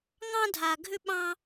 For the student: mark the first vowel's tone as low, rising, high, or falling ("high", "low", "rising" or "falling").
high